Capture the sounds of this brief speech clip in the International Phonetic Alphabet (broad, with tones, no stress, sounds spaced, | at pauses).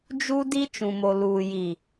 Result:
d͡ʒ u˦ d i˦ t͡ʃ ũ˨ m o˨ l uː˨ j i˨